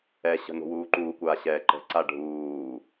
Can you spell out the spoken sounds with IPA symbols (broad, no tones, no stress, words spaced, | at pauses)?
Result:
ɛɕə̤ no̤wuːǃuːkʷaː ɕɛːǃə̤ǀa ɖʱuː